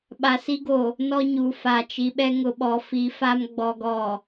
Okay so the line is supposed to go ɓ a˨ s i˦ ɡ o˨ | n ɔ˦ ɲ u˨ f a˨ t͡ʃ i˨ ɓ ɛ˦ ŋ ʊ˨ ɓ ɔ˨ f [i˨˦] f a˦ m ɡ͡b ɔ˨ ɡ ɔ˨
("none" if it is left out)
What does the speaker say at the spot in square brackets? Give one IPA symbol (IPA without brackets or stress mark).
i˨˦